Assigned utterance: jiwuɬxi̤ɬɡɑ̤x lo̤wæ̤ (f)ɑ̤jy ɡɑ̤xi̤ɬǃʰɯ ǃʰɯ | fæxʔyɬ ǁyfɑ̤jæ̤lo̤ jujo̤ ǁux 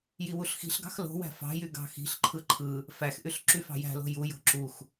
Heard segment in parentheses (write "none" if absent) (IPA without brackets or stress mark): f